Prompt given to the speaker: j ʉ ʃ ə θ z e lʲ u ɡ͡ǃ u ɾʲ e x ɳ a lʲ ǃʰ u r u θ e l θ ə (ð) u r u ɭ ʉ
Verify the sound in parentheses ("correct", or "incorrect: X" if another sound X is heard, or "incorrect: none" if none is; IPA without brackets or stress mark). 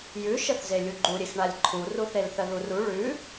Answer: correct